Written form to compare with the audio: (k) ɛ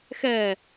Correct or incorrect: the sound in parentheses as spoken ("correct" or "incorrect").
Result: incorrect